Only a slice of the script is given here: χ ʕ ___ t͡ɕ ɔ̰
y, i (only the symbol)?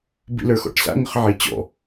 i